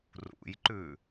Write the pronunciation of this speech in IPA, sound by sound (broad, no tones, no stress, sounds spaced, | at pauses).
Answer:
r ṵ j ǃ ʉ